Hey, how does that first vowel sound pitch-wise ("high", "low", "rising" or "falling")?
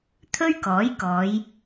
high